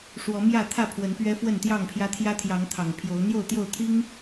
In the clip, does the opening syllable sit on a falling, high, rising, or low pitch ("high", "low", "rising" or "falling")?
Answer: rising